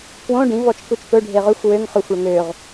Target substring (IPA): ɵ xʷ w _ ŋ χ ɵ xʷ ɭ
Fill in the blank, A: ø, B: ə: A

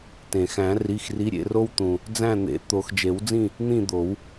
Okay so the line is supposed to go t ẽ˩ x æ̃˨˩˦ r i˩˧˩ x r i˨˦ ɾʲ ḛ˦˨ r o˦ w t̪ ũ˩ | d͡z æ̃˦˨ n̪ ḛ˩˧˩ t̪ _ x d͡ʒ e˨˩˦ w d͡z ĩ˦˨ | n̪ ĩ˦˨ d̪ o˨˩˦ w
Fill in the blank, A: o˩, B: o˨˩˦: B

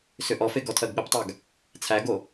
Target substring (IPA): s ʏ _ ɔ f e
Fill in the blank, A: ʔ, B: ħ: A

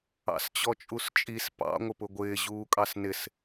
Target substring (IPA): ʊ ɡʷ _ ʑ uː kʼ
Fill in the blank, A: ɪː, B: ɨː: A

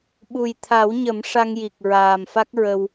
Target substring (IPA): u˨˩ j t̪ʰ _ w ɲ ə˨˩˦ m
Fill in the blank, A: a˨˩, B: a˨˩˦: B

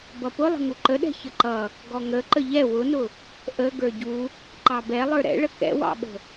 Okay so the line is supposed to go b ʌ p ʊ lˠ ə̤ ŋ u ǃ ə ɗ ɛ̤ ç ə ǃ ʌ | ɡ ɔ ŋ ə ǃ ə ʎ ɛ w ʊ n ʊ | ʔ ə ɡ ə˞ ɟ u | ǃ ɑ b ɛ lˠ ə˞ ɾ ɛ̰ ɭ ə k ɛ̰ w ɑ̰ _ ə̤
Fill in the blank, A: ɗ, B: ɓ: B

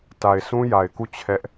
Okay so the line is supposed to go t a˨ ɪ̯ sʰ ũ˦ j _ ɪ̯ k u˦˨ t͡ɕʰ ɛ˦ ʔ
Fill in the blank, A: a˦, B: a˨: B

